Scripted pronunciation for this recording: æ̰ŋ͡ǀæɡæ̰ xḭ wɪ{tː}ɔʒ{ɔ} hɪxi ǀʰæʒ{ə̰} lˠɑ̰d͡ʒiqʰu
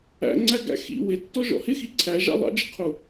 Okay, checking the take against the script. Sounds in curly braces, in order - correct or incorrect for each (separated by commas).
correct, incorrect, incorrect